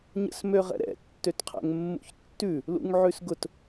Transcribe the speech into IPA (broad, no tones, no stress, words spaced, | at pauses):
ɲə̰smøʁɛ̰ɾɛ̰ tːøtqʰɛ̰ŋmːṵçtːʉ | lṵŋʕʉsɡʊt